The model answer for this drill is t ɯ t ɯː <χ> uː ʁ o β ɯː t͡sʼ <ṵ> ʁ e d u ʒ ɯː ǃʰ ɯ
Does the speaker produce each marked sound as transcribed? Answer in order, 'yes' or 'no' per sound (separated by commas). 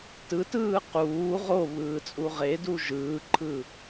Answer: no, no